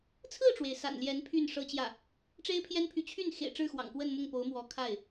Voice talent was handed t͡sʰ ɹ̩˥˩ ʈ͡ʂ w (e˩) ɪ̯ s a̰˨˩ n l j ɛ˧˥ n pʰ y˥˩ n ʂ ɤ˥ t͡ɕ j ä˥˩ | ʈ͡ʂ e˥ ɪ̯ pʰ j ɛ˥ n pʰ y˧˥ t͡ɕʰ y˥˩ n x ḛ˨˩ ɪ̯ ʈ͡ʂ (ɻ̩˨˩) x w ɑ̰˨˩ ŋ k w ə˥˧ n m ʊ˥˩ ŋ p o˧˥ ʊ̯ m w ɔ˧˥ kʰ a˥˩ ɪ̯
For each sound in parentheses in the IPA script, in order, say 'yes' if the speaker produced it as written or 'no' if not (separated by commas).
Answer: yes, no